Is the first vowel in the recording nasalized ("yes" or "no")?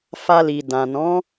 no